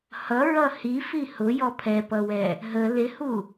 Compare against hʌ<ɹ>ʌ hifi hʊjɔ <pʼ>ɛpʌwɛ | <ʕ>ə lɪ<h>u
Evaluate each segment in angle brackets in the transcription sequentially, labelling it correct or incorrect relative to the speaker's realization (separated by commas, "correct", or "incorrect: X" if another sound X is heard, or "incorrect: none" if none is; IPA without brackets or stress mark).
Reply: correct, incorrect: pʰ, incorrect: ɦ, correct